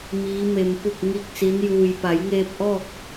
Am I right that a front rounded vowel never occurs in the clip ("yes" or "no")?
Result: yes